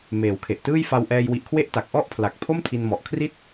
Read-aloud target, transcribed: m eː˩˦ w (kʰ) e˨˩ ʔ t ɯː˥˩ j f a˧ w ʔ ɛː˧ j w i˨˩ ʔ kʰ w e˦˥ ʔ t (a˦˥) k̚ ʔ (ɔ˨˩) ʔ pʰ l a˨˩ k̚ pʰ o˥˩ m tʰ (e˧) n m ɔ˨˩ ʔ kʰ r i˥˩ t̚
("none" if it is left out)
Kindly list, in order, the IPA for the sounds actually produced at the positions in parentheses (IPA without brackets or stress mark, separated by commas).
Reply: kʰ, a˨˩, ɔ˥˩, i˧